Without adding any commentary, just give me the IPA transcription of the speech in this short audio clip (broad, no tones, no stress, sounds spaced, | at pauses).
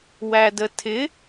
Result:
w æ d ə tʰ ɪ